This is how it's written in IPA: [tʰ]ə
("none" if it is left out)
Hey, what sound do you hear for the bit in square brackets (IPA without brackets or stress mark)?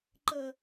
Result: ǃ